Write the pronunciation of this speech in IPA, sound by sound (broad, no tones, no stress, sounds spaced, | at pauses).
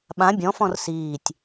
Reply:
ɓ ã bʲ ɔ̃ f ɔ̃ r s iː tʲ